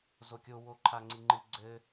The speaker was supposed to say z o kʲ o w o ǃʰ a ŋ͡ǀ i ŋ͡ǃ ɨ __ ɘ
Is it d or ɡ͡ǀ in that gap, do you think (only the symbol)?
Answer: ɡ͡ǀ